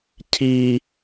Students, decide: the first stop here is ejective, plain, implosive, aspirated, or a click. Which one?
aspirated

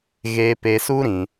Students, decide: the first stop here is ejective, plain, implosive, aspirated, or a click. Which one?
plain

